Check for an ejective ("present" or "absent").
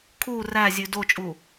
present